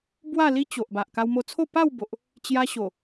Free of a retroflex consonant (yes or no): yes